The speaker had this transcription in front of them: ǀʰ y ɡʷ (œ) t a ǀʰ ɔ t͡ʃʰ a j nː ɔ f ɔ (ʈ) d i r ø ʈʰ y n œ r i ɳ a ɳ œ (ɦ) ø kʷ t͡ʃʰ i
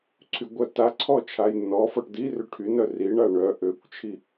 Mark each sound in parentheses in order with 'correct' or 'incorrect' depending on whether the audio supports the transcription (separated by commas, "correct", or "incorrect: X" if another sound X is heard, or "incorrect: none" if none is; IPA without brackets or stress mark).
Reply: correct, correct, incorrect: ʔ